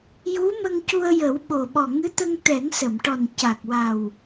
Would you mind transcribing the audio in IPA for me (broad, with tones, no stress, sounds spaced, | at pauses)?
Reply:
j u˧˥ m ə˧ ŋ c u˧ ə̯ j ə˨˩˦ w ɓ o˨˩ ɓ ɔ˨˩ ŋ ɨ˧˥ t̪ ə˧ ŋ t̪ ɛ˨˩˦ ŋ s ə˨˩˨ m ʈ ɔ˨˩ n c a˨˩ k̚ w a˨˩ w